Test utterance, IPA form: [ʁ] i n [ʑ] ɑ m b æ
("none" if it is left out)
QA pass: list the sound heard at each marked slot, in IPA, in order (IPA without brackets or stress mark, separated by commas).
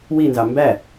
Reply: w, z